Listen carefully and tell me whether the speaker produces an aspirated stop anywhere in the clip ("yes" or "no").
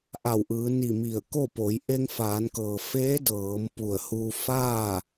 no